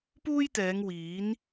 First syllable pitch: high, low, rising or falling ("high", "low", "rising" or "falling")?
high